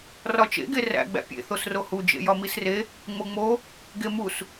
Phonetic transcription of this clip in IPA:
rɒt͡ʃḛ ɡeræ̰ ɡ͡bæ̰pʲḛ θosrohu d͡ʒḛjɒmisre | ŋ͡moŋ͡mo | ɡemus

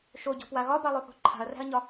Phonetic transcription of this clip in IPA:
ʃoɟɔ̤pwa ɣɒbalˠoθo̤ ǃʰa̤ɐ̯ræ̤ɐ̯ɲɒ

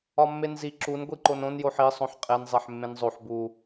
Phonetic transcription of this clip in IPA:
ɒmːenzi ǁun ɡʷiǃonõn joħi sˤõħqʼen zˤeħmːẽnzˤoħ bu

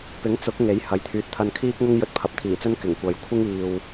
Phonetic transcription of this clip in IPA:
pɪ˨˥ŋt͡sʊ˨˥k̚ ŋe˨˥jhɐ˨˥jt̪ʰyː˨t̚ t̪ʰɐ˧nkʰiː˥k̚ŋʊ˥ŋ jɵ˧t̚pʰɐ˨˥p̚t̪ʰiː˨˩t͡sɵ˥n kɪ˨˩ŋkʷɐ˨j kʷʰɪ˥ŋiː˨w

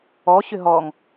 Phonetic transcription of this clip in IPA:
ɔɕʏ ɦɔŋ

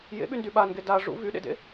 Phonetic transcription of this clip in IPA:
jḛɓyndy ɓanɡe da ʐṵ vyɗḛdḛ

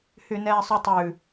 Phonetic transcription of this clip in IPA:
hynɛːsˤytˤʉ

